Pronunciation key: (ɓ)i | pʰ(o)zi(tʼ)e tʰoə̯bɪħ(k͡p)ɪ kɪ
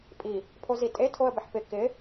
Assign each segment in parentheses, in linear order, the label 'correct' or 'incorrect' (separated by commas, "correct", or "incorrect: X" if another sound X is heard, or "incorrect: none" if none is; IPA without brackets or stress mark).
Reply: incorrect: pʼ, correct, correct, incorrect: p